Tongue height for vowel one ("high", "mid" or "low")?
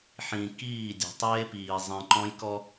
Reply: high